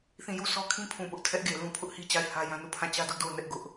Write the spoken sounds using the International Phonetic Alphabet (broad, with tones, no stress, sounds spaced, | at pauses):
θ ĩ˦˨ j u˦˨ s ɔ˦ kʰ ĩ˦ pʰ ũ˨ p ʊ˦ ʔ tʰ ɛ˦ ʔ ɡ e˨ l ũ˦ pʰ ʊ˦ ʔ h i˦ t͡ɕ a˦˨ ɪ̯ h ä˦ j ã˦ n u˦˨ pʰ ã˦˨ t͡ɕ ä˦ d ʊ˦ ʔ d o˦˨ ʊ̯ n ɛ˦ ʔ ɡ ʊ˦ ʔ